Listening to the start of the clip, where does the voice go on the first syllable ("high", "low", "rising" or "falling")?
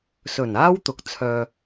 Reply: low